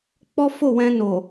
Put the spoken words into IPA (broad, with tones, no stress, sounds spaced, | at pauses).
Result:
k͡p ɔ˦ f o˦˨ w ɛ̃˧ n o˨